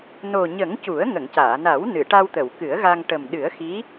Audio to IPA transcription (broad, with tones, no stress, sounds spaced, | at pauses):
n o˨˩ ɲ ə˨˩˦ ŋ c u˨˩˦ ə̯ ŋ ə˨˩˨ ŋ c aː˨˩˨ n a˨˩˦ w n ɨ˨˩˨ ʈ a˧ w t̪ ə˨˩˨ w k ɨ˨˩˦ ə̯ ɣ a˧ ŋ ʈ ə˨˩ m ɗ ɨ˨˩˦ ə̯ x i˧˥